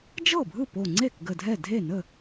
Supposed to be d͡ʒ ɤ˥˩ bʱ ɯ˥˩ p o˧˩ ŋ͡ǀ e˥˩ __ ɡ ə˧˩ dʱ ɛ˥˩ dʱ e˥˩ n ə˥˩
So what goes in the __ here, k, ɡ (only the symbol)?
k